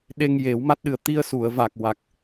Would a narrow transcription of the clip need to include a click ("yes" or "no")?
no